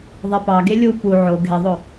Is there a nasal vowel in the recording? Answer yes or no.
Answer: no